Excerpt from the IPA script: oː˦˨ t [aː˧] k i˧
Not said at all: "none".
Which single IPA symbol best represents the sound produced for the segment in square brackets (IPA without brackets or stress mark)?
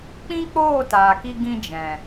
aː˨